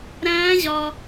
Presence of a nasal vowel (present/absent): present